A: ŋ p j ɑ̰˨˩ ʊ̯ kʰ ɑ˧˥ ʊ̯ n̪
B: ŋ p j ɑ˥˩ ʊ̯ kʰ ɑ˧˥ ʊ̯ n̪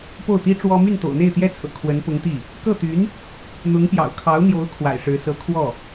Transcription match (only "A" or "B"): A